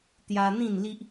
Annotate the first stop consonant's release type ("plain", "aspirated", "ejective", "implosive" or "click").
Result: plain